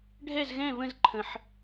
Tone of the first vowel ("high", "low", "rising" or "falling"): falling